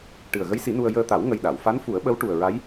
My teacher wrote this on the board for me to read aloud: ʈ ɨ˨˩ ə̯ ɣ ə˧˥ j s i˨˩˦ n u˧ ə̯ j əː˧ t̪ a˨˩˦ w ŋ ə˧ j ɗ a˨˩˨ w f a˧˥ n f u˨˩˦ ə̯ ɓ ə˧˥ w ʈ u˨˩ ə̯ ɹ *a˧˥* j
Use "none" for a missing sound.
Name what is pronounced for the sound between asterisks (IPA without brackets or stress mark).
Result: a˧˥